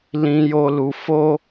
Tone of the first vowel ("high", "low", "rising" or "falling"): high